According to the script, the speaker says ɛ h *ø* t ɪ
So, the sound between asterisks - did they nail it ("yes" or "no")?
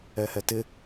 no